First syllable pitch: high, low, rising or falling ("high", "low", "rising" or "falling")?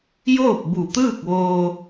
falling